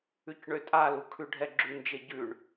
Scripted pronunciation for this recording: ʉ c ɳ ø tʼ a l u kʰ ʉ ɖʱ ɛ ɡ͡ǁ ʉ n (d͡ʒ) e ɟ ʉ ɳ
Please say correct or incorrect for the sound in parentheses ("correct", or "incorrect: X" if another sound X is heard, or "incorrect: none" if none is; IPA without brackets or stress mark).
correct